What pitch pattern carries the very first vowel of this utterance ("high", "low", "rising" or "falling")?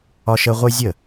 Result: high